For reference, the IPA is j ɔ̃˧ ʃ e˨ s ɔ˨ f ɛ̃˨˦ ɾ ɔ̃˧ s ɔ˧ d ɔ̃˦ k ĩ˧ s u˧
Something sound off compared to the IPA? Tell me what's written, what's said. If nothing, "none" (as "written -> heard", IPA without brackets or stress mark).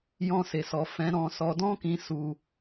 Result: ʃ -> s